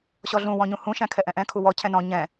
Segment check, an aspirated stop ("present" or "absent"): present